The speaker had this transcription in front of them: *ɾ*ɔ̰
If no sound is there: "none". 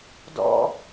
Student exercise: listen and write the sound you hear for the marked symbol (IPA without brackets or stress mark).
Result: d